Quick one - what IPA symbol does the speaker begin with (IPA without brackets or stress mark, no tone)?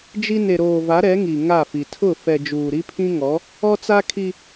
d͡ʒ